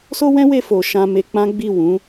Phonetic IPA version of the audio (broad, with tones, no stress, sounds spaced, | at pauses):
s o˦ w ɛ̃˦ w e˧ f o˨ ʃ ã˧ m e˧ k͡p ã˦ ɡ͡b i˦˨ w ũ˨˦